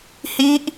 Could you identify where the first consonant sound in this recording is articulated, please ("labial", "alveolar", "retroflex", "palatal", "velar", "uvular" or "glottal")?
glottal